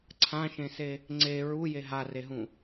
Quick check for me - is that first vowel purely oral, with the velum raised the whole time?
no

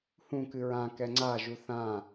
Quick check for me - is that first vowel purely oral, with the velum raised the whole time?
no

